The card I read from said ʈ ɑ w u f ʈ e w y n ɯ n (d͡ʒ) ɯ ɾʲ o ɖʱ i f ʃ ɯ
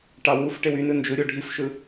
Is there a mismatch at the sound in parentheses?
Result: no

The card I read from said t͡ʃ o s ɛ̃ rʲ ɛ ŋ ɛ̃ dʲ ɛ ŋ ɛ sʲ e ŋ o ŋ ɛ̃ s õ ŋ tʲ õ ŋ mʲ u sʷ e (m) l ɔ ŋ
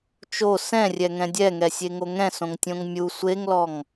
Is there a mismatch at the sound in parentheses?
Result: yes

